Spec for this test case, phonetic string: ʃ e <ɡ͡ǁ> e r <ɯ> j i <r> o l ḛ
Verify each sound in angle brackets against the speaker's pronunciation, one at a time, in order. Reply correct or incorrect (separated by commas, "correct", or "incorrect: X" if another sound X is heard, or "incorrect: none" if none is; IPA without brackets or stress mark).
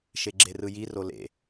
correct, correct, correct